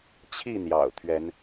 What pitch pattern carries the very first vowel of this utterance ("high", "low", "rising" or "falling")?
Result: falling